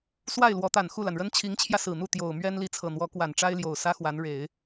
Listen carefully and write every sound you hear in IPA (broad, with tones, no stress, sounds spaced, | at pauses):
s w a˥˩ ɪ̯ l w ɔ˧˥ t̪ a˨˩ n x u˥˩ l a˩ n ɻ ə˥ n t͡ɕʰ i˧˥ ŋ t͡ɕʰ j ä˧ s ɹ̩˨˩ n̪ u˥˩ t̪ j o˨˩ ʊ̯ m ɥ ɛ˥ n l i˧˥ t͡sʰ ɤ˨˩ n̪ w ɔ˧˥ k w a˨˩ n ʈ͡ʂ a˥ ɪ̯ l j o˨˩ ʊ̯ s ä˥ x w a˧˥ n ɻ e˨˩˦ ɪ̯